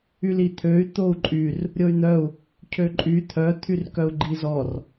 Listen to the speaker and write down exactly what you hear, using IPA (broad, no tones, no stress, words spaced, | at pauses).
ylit̪ʰøy̯ t̪ou̯ǃʼyr | ɾʲoy̯n̪œu̯ | cʰøǃʼy t̪ʰœ t̪ʰyrkœu̯ɡ͡ǃizɔr